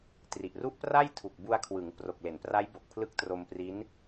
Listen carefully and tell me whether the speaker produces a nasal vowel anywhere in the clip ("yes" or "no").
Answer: no